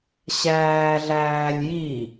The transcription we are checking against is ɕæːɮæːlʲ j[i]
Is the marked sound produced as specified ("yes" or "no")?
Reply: yes